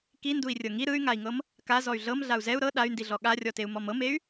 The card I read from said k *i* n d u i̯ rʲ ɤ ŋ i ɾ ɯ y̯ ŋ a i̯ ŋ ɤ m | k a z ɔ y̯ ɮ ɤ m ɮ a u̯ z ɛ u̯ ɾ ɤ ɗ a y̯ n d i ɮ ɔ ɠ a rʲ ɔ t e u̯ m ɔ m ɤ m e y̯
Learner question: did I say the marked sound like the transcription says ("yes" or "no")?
yes